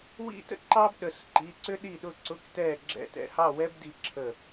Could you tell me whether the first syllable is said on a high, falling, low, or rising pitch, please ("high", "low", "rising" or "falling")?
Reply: high